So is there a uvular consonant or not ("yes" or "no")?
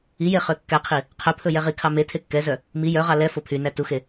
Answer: yes